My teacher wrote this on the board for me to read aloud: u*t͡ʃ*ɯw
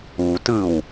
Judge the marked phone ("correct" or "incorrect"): incorrect